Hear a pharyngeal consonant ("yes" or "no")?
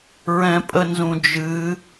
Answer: no